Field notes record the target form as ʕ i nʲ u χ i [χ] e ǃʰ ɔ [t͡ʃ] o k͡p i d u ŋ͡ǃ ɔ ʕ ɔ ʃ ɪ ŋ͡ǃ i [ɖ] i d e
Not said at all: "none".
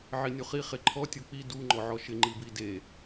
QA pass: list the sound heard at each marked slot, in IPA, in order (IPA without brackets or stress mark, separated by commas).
χ, tʲ, b